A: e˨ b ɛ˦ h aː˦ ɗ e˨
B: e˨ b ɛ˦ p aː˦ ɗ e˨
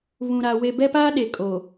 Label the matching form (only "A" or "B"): B